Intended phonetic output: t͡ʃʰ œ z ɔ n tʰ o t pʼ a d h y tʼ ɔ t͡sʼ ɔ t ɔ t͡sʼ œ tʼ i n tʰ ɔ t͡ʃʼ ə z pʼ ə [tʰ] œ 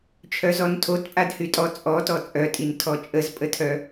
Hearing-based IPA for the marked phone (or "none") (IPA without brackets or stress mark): tʰ